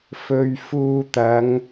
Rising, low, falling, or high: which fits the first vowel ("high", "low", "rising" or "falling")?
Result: low